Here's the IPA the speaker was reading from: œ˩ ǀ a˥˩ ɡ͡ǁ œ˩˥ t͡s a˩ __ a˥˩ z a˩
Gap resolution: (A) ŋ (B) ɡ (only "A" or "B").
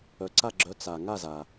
A